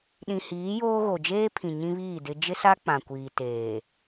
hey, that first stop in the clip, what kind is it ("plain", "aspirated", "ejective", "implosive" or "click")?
implosive